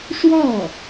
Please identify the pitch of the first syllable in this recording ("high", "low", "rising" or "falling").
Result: falling